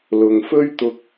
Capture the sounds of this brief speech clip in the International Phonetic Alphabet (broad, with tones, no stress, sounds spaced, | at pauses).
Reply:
l ʊ˨ ŋ f ɵ˥ ɥ t̪ ʊ˧ k̚